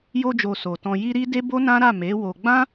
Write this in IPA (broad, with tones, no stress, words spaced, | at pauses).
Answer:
jo˧d͡ʒo˨ so˨tɔ̃˧ ji˦ɾi˦ de˦bo˦nã˦ɾa˦˨ me˨˦wo˧ ɡ͡bã˦